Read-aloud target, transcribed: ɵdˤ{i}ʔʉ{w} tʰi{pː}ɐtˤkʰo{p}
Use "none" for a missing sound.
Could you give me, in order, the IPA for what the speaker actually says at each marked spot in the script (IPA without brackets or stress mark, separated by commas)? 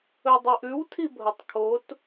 i, w, bʱ, t